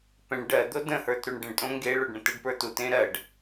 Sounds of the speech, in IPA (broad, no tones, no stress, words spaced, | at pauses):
pɛ̃ɳ ɖɜd̪o də̃hə˞t ɾuɳɖə̃ɳtʼõ ŋɡeɭoɖ ɳə̃təɖpə˞ tutẽ ɾɜɖ